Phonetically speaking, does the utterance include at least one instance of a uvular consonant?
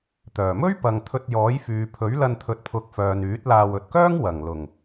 no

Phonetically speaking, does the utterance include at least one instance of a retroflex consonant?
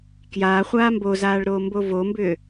yes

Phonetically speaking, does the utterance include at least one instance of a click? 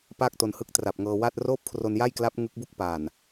no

